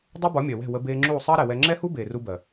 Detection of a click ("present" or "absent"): present